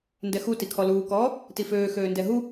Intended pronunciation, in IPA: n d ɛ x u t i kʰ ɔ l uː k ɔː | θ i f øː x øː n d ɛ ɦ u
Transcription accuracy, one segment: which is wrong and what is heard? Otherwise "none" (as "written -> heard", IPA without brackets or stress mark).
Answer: θ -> t